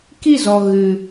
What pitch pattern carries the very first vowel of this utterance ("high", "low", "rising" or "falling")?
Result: falling